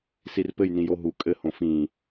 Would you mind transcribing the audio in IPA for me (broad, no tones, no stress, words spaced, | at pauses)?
sirpɘj nĩjoɦu kʼɘ hõfĩ